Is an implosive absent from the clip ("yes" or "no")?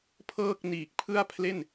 yes